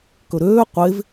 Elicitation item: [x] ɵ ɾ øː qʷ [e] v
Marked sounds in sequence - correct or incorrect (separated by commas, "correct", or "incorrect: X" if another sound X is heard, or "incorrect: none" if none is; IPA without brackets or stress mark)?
incorrect: k, correct